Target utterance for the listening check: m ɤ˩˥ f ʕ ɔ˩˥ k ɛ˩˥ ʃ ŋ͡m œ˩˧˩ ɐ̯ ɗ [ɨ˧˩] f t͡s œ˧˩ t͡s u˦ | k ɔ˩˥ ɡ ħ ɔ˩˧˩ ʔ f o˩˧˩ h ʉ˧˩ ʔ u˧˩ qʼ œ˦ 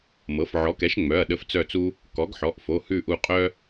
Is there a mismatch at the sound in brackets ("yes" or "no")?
yes